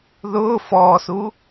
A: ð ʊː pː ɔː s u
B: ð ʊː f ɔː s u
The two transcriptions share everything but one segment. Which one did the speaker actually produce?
B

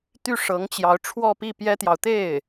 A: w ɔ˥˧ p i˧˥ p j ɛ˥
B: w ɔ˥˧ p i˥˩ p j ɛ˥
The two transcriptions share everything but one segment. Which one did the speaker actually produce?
B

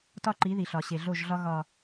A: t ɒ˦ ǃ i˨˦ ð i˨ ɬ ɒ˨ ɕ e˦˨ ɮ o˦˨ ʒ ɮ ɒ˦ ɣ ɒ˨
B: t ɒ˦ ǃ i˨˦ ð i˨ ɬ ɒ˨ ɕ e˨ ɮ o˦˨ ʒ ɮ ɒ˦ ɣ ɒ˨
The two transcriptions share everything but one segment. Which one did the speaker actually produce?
B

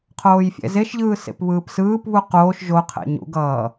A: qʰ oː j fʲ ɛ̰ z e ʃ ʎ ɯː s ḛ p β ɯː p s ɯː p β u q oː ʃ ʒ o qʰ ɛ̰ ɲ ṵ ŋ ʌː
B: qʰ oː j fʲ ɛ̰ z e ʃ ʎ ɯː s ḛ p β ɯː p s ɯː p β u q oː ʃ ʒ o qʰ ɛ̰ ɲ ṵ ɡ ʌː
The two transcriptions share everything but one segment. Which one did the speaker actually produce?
B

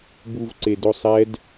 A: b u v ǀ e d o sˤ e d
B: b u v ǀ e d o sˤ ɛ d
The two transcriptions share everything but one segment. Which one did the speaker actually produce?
B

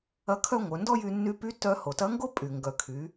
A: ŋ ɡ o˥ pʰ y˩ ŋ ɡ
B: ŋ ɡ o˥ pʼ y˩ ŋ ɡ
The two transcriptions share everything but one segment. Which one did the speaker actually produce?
B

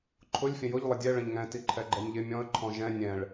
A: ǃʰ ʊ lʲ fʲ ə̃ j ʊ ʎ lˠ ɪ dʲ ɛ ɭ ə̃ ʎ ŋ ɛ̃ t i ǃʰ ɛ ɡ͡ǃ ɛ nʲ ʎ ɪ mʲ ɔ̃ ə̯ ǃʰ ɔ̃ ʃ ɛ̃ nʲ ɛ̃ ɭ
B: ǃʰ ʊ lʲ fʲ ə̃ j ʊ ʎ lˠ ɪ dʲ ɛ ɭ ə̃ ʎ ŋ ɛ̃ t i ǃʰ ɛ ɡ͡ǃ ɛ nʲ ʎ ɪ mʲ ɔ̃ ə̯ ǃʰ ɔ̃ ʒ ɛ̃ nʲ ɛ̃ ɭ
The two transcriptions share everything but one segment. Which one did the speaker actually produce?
B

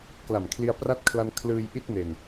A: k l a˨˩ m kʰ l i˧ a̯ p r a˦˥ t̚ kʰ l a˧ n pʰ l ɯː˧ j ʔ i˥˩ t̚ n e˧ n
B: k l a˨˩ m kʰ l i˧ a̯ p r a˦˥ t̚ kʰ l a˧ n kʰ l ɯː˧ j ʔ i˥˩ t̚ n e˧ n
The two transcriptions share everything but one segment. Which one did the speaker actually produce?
B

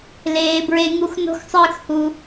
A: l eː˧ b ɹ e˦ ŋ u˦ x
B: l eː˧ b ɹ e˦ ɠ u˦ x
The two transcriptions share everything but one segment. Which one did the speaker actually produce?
A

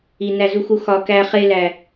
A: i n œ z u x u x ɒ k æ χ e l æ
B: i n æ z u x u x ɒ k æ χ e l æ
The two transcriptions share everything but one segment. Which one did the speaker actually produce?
B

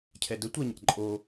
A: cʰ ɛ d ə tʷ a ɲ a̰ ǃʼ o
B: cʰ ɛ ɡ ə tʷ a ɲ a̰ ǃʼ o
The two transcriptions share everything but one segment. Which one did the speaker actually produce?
A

